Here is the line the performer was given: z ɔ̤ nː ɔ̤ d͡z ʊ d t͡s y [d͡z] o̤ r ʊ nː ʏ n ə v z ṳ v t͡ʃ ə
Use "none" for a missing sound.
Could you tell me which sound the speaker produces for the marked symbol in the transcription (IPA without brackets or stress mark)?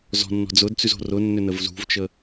z